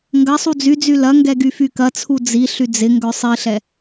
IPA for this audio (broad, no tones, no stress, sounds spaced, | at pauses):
ŋ ɡ ɐ sˤ u d͡z y d͡z y l ɐ ŋ ɡ ɛ ɡ y f y k ɐ t͡sʰ u d͡z i ɬ y d͡z ɪ ŋ ɡ œ sˤ i ɬ ɛ